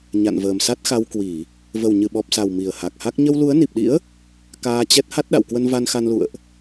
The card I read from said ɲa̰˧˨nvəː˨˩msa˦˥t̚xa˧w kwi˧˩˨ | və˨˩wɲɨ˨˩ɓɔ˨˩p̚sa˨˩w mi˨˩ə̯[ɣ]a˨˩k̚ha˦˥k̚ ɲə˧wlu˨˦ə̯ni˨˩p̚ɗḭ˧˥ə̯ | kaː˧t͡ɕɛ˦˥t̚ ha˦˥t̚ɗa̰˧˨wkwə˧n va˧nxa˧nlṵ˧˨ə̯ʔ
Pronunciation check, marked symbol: incorrect: h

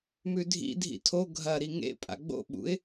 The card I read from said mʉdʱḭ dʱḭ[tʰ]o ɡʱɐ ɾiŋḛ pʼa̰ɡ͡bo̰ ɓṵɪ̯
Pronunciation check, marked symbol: correct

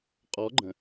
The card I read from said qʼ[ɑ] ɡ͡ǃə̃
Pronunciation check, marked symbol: incorrect: ɔ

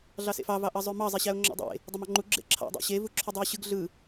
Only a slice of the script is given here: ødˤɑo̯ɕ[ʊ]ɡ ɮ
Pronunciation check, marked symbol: incorrect: ɯ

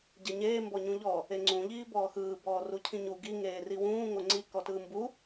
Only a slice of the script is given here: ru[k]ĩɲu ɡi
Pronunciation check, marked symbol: incorrect: cʰ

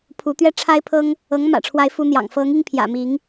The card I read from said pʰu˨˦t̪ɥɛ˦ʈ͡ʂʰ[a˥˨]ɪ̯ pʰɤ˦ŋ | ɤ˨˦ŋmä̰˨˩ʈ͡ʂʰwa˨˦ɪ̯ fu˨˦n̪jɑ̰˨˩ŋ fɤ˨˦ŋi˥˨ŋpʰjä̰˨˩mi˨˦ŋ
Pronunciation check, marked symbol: incorrect: a˦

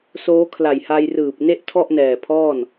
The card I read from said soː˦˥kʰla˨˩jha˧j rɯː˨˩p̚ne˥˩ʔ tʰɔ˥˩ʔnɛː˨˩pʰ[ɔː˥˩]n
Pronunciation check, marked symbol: correct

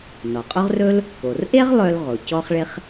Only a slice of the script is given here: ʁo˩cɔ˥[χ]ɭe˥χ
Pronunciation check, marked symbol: correct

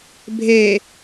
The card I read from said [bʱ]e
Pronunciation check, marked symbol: correct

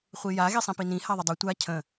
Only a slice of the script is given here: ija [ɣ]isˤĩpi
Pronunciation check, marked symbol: correct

